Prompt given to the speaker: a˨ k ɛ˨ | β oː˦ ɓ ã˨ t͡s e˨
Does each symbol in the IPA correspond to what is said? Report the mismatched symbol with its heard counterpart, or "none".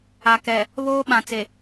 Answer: none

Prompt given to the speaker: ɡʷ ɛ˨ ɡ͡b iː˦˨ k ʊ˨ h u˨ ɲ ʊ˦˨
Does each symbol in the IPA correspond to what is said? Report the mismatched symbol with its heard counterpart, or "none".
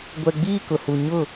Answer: none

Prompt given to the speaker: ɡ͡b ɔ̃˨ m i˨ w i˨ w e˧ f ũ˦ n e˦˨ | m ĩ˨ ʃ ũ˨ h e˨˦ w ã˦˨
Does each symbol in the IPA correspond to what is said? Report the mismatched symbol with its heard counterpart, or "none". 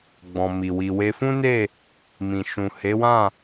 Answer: none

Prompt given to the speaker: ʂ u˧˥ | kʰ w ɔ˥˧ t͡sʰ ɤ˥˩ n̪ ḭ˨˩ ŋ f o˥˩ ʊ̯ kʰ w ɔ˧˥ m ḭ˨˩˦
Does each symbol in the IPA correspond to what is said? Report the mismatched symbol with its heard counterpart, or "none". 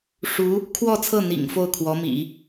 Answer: none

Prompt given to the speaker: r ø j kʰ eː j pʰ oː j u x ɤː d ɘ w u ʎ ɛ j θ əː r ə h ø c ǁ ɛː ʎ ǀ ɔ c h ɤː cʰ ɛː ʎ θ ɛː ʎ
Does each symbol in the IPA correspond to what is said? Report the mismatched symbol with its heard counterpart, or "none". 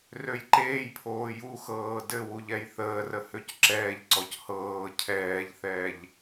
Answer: kʰ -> ǃ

